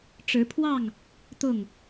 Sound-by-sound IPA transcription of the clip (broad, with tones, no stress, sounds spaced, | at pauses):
ʈ͡ʂ ɻ̩˨˦ pʰ w ɑ˥˨ ŋ | t̪ ʊ˥˨ ŋ